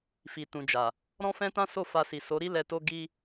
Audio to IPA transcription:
fi˨tũ˨d͡ʒa˨ | ɾɔ̃˦fɛ̃˦tã˦ so˦˨fa˧si˨ so˨˦ɾi˦ lɛ˧to˦ ɡi˦

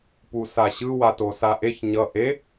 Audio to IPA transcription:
pusaɕɯ watosaʔeç ɲʌ ʔe

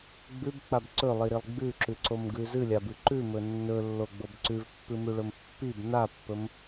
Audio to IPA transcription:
ɡ͡bʉbk͡pab ǀɵlˠiɾilˠ ɡ͡bʉǁʉǀomɡʉ zɨlʲabɨ ǃʉmɵ nːɵlːoɡ͡bob ǀʉvpːɨmʉɭɵm pːib napːɵm

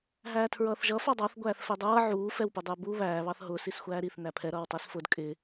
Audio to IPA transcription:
ɦæːtʰɹʌːθʒʌ fɑdˤɑθ ɡʷæːθfɛdˤʌː ʕuː fɛwpʊdˤʊːbu βæː βɑθɦʊːs isxʷæːɾiθ næpʰɛ ɾʌːwtˤɛsfʊd kʼɪ

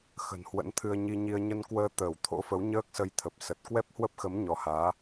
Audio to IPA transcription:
xə̤˨˩nhwə̰˧˥nt̪ʰɨ˧ə̯ ɲi˧ɲi˧ə̯ ɲə˧nkwəː˧ t̪əː˧˩wt̪ʰo̰˧˥fə˨˦wɲəː˦˥k̚ sə˧jt̪ʰə˨˩p̚ sə˨˩t̚ kwɛ˦˥p̚hwə˦˥p̚xə˨˦m ɲɔ˨˦haː˨˦

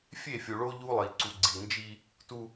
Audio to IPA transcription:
fʲe˦˨fʲu˨ɭo˦ ʎu˦lˠi˨ ǀu˨ɡ͡ǀi˨nd͡ʒi˦ | tu˦

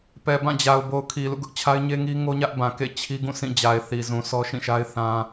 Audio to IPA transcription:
pɛ˨bã˦˨d͡ʑa˨ʊ̯ bo˨ʊ̯kʰi˨lṵ˦˨ɡʊ˦ʔ t͡ɕʰa˦ɪ̯ɲe˦ŋi˦ ŋo˦ɲä˦ʔ bã˨kḛ˦˨ t͡ɕʰi˦ɡũ˦˨ sʰĩ˦˨d͡ʑa˨ɪ̯θi˨zũ˨ sʰɔ˦ʃĩ˦˨ʃa˦ɪ̯ θã˦

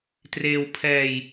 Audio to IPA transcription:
treː˧wpʰɛː˧j

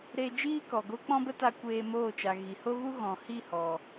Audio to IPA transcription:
ɾe˧ d͡ʒiː˦kɔ˨ɡo˦ k͡pɔ̃˦bə˦ta˧ kʷeː˧moː˦˨t͡ʃa˨ ɣi˨ho˦ɣu˦ ɣɔ̃˨hi˦˨hɔ˨

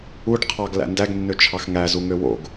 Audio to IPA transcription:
uɖ qʰɑɡlæ̰ ndæɡnːøt͡ʃʰɑx ŋæzuŋø wo̰ɡ

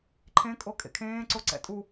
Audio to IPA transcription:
ǃʰẽkʼo kʼḛkʰẽːǀo ǀɛ̰tʼu

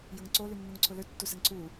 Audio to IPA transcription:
jɐŋǀo lynːoŋǀʰʊlø tːusɛŋǀʰu

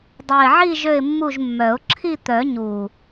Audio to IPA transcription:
dˤɛ˨˩ɪ̯ʕi˦˨ ʒø˦˨ɪ̯mːu˦˨ʒmːœ˨˩˦ʊ̯ ǁʰi˦˨t̪œ˨˩˦ ɲu˨˩

